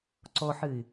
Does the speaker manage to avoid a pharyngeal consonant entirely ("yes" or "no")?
no